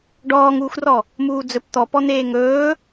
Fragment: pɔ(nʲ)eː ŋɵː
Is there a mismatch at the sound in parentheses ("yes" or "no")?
yes